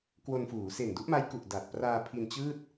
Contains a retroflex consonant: no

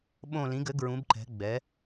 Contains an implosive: yes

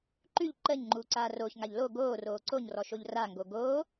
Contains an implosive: no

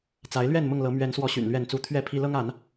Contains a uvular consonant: no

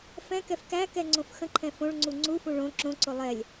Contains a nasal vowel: yes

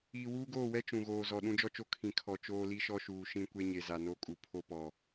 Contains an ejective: yes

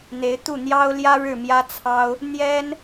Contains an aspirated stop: yes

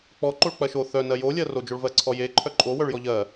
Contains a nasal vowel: no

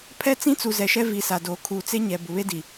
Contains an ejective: no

